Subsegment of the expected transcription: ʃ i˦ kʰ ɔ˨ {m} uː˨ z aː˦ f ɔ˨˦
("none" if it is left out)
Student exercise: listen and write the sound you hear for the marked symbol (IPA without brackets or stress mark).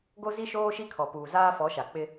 p